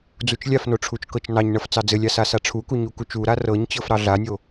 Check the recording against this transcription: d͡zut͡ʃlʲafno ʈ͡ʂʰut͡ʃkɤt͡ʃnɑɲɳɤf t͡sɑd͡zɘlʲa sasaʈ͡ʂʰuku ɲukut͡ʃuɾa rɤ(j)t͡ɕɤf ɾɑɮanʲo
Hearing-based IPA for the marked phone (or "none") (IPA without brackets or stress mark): ɲ